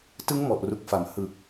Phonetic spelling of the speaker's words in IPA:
t ɯ˦˥ ŋ m ɔ˨˩ ʔ r u˨˩ k̚ f a˨˩ m h ɯ˨˩ k̚

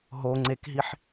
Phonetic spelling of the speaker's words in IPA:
ɦ o ŋ͡ǀ e k ɦ i ħ

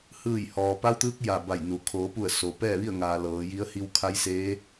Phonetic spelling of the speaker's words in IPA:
h ɯː˧˩ j h ɔː˩ p a˧˥ w t̪ ɯː˧˥ k̚ j a˧˩ b a˧˩ j n u˩ kʰ oː˩˧ p u˧˩ ə̯ s o˩˧ p ɛː˥˨ ʋ i˥˨ ə̯ ŋ aː˩ l ɤː˩˧ j i˧˥ ə̯ h i˧ w kʰ a˧˥ j s eː˧˥

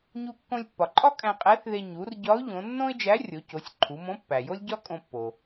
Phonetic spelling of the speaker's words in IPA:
ɲ u˧ kː õ˧ lʲ pː ɒ˩ ǃʼ ɒ˥ kʼ æ̃˧ qʼ æ˧˥ θ ð e˧ ɲ u˩˧ r ɟ ɒ˧˥ ʊ̯ ʎ õ˩˧ nː õ˥ ɪ̯ d͡ʒ æ˧˥ rʲ o˩˧ c o˩˧ sʲ ǃʰ u˩˧ m õ˧˥ pː æ˩ j o˥ lʲ ɟ ɒ˥ kʼ õ˧ pː o˩

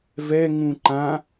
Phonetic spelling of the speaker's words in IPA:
v ɛ ŋ ũ ǃ ã

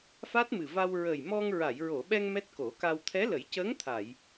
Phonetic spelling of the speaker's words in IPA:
f a˦˥ t̚ m ɨ˨˩ v a˧ w ɹ ə˨˩ j m ɔ˧ ŋ ɹ a˨˩˨ j ɹ o˨˩˨ ɓ ɛ˧ ŋ m ɛ˦˥ t̚ k o˨˩˦ k a˧ w t̪ʰ ɛ˧˥ l ə˨˩˦ j c əː˧˥ ŋ t̪ʰ a˨˩˨ j

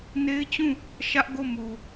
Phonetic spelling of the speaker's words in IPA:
n e˦ ɪ̯ t͡ɕ ũ˦˨ | ʃ ä˦ ʔ ɡ o˦˨ m u˨

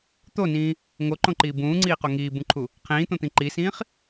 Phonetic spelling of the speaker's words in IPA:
t̪ o n ĩː | ŋ o ǃ õ ǃ iː b ũː ŋ͡ǀ iː q o ŋ iː b ũ ǃʰ u | qʰ ĩː t̪ õ t̪ ĩ ǃ i s ĩː χ

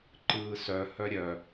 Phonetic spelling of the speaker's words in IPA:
ǃ ɯː s œ h œ ɾʲ œ

